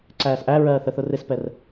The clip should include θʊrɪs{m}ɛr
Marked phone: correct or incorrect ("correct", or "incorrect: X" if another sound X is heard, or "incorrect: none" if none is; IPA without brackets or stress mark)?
incorrect: p